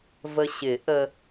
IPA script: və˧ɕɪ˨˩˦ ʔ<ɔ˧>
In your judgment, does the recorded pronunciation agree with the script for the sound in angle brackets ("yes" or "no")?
no